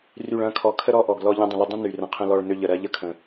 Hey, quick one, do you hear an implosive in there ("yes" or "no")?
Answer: no